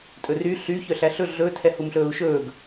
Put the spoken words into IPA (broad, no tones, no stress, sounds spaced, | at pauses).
tʼ ɵ r y ɬ y ç œ ɬ æ ɬ ɵ ɮ ɵ tʰ ɛ h u m ɬ ɵː u̯ ʃ ɵː ɡ